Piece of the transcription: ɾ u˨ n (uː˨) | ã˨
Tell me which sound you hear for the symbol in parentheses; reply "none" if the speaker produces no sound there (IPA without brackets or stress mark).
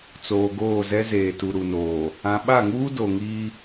oː˨